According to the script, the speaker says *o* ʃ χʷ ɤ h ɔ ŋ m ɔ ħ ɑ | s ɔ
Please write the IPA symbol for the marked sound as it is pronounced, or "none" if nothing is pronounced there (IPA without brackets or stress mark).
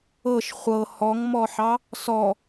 ɤ